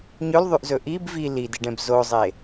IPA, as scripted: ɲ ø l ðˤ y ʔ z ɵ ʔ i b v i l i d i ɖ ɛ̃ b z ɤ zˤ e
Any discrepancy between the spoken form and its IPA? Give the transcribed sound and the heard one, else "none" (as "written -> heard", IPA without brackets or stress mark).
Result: ɤ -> o